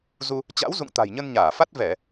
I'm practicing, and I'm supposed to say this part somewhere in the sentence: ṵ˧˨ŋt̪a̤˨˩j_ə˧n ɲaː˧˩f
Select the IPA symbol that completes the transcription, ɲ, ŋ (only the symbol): ɲ